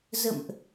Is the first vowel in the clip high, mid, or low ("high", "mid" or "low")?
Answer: mid